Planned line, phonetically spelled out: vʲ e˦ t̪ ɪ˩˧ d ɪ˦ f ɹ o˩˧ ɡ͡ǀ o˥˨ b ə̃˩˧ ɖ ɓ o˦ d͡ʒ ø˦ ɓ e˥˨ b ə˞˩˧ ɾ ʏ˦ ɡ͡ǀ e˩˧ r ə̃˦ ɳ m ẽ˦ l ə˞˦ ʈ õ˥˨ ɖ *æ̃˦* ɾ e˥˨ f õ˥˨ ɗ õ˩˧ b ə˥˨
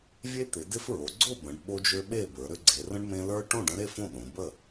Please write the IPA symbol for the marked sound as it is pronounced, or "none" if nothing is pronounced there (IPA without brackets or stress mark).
ə̃˦